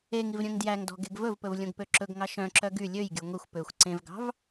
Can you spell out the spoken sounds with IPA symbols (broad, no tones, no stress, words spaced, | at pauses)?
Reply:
eŋiv ɾʲœ̃ŋdjæŋdɔ̤ ɡeɡvɵvpɵv lʲõɡpøǁɵɡŋɑ ʃœ̃ǁœ ɡy lʲøjɡʲo ŋʷixʷ pøxʷ ǀẽvɡɑ̤v